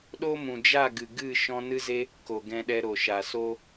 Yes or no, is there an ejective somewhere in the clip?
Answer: no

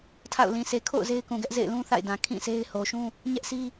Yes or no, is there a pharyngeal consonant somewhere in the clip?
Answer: no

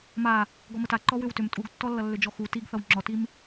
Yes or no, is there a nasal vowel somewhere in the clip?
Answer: no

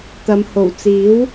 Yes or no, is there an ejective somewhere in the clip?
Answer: no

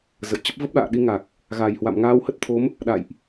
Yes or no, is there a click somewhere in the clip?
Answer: no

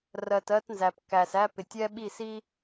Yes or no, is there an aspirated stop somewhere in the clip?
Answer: no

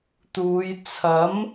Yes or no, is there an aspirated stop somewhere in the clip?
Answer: yes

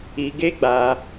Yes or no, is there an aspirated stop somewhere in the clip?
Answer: no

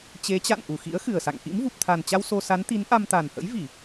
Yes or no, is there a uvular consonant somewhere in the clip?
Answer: no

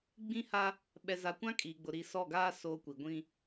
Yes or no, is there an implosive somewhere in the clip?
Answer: yes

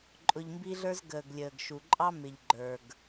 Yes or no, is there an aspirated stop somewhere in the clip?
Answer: no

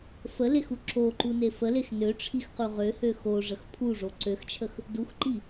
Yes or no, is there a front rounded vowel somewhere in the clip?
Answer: yes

